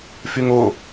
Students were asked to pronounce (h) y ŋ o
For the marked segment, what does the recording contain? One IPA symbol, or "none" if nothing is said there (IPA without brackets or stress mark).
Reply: f